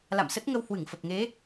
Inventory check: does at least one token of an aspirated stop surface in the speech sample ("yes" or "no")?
no